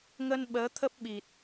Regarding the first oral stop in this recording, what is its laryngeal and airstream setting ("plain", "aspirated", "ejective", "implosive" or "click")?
implosive